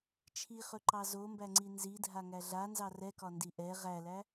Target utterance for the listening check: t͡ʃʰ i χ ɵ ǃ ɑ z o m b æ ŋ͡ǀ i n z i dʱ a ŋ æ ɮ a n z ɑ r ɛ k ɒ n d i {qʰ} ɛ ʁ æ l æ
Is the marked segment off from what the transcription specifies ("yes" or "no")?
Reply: yes